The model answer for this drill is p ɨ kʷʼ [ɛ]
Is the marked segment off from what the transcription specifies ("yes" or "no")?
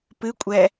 no